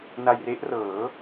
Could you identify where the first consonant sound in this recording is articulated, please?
alveolar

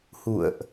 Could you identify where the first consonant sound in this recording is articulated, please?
glottal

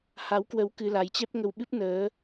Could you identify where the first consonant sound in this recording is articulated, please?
glottal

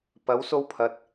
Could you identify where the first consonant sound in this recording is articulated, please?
labial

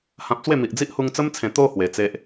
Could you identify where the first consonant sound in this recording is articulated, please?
glottal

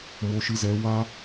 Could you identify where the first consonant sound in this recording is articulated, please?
labial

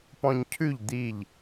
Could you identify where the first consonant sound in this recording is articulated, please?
labial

